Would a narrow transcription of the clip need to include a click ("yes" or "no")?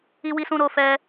no